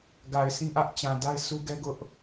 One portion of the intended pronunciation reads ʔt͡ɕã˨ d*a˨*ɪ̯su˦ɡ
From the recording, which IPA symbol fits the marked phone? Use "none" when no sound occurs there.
a˦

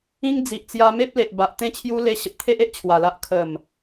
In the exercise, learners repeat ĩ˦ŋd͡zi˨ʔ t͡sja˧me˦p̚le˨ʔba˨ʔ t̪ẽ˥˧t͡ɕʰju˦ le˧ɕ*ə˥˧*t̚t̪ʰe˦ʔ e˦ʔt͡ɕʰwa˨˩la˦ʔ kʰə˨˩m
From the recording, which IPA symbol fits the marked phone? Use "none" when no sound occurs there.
ə˨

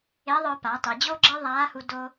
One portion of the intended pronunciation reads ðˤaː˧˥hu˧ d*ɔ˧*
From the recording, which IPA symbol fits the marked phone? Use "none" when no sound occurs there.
o˧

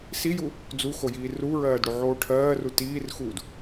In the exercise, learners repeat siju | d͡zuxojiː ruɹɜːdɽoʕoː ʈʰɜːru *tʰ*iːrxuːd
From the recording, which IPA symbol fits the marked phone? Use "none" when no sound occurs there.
t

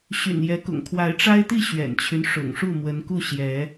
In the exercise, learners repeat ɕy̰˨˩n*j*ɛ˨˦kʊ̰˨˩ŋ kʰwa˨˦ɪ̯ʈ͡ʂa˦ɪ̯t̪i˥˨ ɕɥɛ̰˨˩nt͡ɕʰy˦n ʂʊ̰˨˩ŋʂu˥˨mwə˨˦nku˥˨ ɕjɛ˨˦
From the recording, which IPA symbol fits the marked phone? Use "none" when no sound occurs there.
j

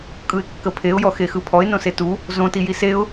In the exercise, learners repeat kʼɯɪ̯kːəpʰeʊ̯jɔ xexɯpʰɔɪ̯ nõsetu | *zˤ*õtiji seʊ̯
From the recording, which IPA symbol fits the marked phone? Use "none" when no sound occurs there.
z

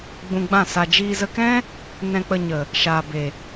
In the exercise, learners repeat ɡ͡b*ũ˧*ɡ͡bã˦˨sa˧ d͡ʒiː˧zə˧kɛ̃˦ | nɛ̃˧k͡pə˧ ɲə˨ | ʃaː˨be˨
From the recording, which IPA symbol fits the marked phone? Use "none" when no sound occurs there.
ũ˧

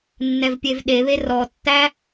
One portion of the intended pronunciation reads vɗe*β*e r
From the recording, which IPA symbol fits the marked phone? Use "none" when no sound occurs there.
β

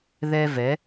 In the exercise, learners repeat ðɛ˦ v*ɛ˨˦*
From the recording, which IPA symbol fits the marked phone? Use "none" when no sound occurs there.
ɛ˨˦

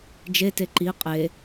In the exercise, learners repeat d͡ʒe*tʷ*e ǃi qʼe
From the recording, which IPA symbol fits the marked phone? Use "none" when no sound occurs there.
t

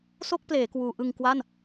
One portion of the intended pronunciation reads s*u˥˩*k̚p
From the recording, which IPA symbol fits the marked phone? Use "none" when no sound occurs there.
o˥˩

